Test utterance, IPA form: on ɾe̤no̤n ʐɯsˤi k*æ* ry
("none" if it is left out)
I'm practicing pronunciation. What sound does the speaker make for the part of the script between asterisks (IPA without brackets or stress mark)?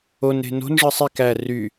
æ